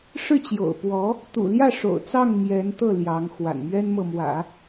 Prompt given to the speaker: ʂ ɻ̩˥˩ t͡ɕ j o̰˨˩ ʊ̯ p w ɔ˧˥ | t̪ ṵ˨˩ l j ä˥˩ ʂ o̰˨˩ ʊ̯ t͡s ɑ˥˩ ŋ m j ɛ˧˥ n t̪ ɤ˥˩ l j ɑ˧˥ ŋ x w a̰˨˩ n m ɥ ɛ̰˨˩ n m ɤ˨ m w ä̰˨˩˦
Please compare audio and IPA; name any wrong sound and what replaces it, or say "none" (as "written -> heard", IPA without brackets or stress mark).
ɛ̰˨˩ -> ɛ˥